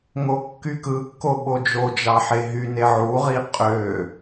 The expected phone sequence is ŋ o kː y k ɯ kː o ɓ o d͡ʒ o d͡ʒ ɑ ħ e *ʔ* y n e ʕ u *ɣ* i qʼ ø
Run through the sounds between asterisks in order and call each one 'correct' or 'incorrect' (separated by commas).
incorrect, incorrect